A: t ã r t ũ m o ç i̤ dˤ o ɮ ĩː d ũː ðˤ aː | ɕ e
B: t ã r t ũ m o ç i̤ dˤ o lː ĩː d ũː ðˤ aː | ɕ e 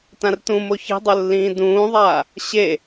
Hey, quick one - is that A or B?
B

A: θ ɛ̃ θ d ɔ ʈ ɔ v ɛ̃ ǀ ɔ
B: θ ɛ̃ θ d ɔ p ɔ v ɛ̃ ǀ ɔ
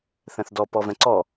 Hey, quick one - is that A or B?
B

